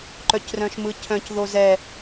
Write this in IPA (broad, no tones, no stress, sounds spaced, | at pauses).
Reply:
ǃ œ c r œ̃ ʃ m ɯ cʰ œ̃ c ð o z ɛ